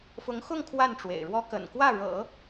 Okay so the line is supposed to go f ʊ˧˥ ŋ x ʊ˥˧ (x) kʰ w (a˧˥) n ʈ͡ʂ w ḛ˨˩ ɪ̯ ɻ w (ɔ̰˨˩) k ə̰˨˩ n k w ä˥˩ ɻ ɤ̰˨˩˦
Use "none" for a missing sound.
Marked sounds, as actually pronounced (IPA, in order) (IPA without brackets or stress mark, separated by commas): ŋ, a˥˩, ɔ˥